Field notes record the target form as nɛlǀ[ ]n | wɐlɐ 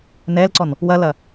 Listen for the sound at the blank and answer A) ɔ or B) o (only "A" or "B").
A